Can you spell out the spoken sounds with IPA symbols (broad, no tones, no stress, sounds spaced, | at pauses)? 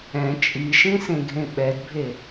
ɛ̃ t͡ʃʼ i ʃ ĩ s ẽ ɡʱ ẽ ɓ ɛ d bʱ e